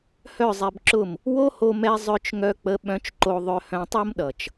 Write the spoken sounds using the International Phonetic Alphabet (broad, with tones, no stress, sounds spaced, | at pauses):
h œ˦˨ zˤ ɛ˧ b ǁ ʊ˦˨ m | w o˦ h o˧ m ɛ˧ zˤ œ˦ t͡ʃ ŋ œ˦ k͡p ə˦ ɓ œ̃˧ t͡ʃ ǃ o˧ ðˤ œ˧ h œ̃˧ tˤ o˦ m ɗ ʌ˨ t͡ʃ